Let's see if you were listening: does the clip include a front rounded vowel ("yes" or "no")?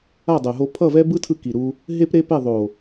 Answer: no